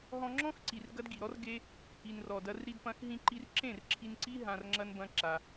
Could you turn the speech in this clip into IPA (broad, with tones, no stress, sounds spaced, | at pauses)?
ɦ ɔ̃˧ ŋ͡ǁ ɔ̃˦ x ǀ i˨ r ɡ ɐ˦ d ɡ i˨ ɾ ɔ˦ r ɡ e˦ | i˨ n r ɔ˨ d ɐ˧ r ɾ i˧ d p ɐ̃˧ x ɦ ĩ˧ ǃ i˧ r ǁ ẽ˦˨ r ǁʰ i˧ n ǀ i˦ ɦ ã˧ r ŋ͡ǁ ɐ˦ n b ɐ̃˦ ǁ a˧